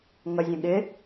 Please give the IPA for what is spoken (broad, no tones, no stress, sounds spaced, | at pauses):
ŋ ʌ zʲ ə̃ ɠ ɪ